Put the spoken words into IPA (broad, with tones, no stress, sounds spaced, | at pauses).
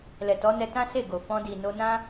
l ɛ˨ t ɔ˨˦ n ɛ˧ t ã˦ s e˦˨ ɡ o˨ f ɔ̃˧ d i˨ n o˧ n ã˦